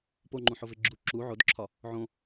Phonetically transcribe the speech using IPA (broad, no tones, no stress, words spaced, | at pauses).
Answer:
poŋ͡ǃũħove ɡ͡ǁu ǁu ʕodǁʰɒ | ʕõ